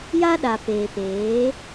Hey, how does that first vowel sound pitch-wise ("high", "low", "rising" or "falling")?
high